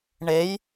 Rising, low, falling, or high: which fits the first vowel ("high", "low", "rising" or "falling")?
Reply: rising